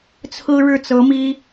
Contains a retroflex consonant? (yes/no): yes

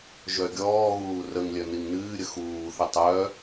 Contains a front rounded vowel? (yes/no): yes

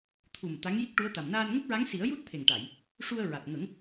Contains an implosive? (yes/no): no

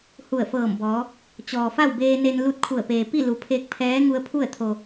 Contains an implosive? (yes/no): no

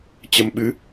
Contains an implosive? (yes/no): yes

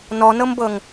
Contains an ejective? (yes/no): no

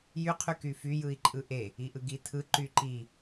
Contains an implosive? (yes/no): no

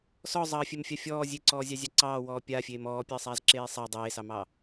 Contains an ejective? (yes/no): no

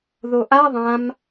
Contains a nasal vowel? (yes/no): yes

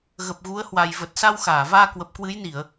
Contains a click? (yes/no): no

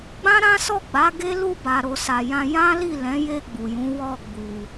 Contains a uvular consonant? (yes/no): no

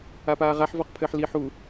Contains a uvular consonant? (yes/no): yes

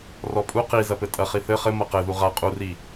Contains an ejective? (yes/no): yes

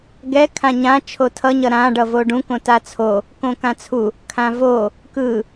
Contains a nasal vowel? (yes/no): yes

